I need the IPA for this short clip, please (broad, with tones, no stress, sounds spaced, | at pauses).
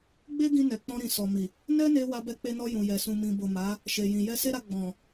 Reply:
ɡ͡b e˦ ɡ ĩ˧ n ɛ˨ k͡p ɔ̃˧ ɾ ĩ˨ s ɔ˨ m i˨ | n ɛ˦ n e˧ w a˧ b ɛ˧ k͡p e˧ n ɔ˧ j ũ˨ j ɛ˨ s ũ˨ m ĩ˨ b o˨ m a˨˦ | ʃ e˨ j ĩ˨ j ɛ˧ s e˦ ɾ a˧ ɡ͡b ɔ̃˨